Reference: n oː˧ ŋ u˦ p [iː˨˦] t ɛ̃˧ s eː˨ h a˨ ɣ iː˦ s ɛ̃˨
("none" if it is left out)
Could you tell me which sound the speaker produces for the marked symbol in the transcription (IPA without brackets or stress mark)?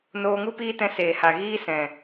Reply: iː˦